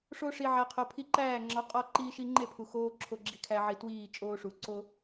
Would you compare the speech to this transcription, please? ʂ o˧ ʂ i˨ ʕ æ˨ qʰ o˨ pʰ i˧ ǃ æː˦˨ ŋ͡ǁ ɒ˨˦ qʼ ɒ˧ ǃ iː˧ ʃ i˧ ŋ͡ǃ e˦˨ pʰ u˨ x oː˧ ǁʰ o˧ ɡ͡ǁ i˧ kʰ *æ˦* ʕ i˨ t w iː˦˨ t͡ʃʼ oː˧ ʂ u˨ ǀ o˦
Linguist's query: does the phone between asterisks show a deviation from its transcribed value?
yes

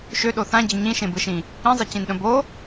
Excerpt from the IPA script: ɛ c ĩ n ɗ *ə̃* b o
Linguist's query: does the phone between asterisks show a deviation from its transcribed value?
no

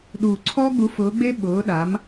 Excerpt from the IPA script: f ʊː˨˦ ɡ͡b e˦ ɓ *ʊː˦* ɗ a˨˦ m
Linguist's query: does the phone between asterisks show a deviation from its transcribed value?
yes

